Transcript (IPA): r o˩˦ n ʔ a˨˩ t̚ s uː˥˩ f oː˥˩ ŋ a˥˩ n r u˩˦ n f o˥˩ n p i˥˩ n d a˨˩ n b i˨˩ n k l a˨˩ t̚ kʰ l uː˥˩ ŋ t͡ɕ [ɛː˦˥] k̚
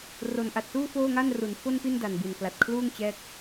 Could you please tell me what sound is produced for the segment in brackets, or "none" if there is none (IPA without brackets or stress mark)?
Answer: ɛː˦˥